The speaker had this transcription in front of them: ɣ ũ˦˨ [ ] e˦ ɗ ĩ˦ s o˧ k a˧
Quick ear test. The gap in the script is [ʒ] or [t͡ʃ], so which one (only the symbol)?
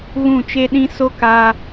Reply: t͡ʃ